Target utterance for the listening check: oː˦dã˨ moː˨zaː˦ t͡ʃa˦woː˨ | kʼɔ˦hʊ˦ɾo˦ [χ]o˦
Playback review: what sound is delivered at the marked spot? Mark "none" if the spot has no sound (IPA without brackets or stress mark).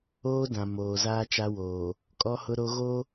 ɣ